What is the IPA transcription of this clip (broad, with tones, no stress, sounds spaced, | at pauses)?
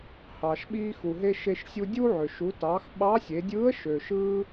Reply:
h ɑː˩ ʃ ɓ iː˧ x u˩ ɦ e˧ ʃ e˧ ʃ sʲ u˧ dʲ u˥ ʕ ø˩ ʃ u˩˧ t ɑː˩˧ x ɓ ɑ˧˥ sʲ e˩˧ dʲ ɯː˧˥ ə̯ ʃ ø˩ ʃ ɯː˥